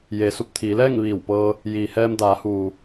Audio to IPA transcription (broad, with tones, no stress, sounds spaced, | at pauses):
j eː˩˧ s u˧˩ p̚ t̪ʰ iː˩˧ l ɛː˥˨ ŋ ʋ iː˧˩ w p ɤː˧ | j iː˩ h ɛː˧ m d aː˩˧ h uː˩